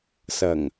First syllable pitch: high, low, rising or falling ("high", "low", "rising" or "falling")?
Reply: low